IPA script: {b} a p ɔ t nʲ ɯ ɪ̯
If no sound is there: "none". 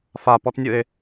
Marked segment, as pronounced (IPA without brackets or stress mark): f